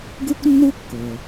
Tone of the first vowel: high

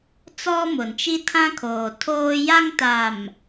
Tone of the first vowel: high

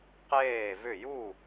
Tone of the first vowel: falling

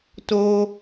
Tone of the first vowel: high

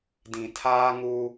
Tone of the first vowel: low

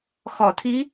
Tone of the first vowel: low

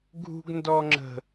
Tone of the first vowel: high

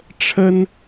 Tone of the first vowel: high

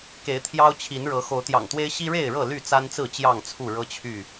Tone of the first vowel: rising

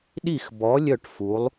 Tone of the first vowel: falling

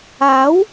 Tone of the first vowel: rising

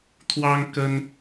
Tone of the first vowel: high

